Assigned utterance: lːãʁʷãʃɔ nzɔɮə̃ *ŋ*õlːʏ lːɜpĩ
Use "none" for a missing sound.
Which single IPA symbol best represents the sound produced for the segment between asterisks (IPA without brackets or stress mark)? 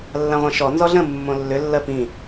mː